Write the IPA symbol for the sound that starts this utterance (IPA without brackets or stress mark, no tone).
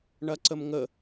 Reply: ɳ